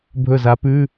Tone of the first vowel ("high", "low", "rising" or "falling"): falling